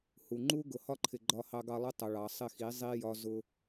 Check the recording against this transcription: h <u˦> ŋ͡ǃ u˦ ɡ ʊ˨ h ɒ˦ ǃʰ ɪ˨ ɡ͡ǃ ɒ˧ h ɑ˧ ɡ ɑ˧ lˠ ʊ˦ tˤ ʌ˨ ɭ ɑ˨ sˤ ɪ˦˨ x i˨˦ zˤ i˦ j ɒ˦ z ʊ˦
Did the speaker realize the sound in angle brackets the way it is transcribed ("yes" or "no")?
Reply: no